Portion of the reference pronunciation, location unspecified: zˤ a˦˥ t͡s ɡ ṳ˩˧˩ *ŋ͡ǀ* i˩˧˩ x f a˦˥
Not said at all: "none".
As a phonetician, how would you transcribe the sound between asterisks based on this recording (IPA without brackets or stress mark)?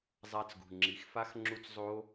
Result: ŋ͡ǁ